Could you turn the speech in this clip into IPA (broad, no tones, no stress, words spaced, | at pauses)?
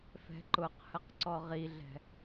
fɛ̤ǃʊqhəq ǀɔʁiɮɛ̤